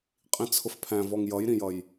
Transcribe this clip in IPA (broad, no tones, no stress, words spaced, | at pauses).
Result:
qʼĩt͡sʰʊfpʰæ̃ vɔŋjʌjɾĩjʌj